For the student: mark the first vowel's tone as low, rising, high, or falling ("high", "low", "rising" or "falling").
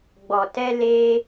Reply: low